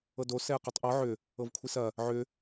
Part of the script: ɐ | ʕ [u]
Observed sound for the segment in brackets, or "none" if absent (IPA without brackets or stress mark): ʏ